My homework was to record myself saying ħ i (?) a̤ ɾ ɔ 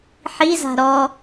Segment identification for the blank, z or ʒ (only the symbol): z